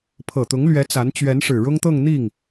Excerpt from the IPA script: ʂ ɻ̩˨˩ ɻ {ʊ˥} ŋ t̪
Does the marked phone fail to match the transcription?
no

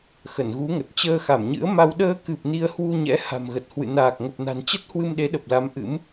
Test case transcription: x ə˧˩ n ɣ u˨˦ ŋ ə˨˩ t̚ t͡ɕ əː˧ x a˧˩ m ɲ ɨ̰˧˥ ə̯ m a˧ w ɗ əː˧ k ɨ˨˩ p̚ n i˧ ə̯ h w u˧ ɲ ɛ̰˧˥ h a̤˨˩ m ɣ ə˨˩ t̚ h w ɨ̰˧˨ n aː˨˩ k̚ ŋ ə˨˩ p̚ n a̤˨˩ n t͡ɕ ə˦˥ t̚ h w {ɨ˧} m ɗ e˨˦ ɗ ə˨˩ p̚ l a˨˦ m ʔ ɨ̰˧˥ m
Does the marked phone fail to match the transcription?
no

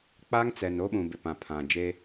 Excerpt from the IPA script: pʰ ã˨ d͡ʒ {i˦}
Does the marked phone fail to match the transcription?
yes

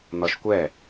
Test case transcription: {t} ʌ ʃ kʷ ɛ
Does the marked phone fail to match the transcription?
yes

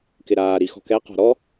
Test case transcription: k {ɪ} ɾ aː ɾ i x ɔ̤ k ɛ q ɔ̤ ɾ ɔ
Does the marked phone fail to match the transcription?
no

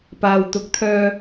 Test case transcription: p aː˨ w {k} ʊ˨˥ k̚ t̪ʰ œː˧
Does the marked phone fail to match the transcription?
yes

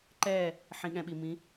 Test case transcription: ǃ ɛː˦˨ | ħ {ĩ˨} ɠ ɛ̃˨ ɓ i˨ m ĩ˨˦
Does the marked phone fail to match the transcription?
no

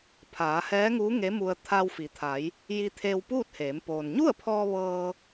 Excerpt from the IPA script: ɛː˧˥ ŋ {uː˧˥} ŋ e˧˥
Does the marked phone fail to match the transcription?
no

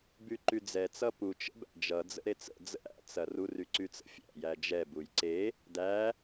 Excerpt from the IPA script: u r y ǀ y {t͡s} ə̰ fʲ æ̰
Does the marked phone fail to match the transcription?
no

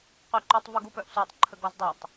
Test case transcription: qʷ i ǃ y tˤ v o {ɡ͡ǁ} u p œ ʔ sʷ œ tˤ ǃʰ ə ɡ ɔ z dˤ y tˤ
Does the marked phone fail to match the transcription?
yes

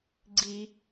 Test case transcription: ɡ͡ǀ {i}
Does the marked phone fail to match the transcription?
no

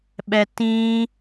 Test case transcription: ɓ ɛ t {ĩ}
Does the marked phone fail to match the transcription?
no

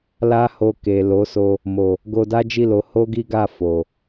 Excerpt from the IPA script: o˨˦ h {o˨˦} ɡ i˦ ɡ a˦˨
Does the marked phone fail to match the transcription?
yes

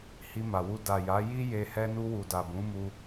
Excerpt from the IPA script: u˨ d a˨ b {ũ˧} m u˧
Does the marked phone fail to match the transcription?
yes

